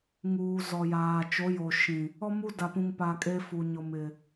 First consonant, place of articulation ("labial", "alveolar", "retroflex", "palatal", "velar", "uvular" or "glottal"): velar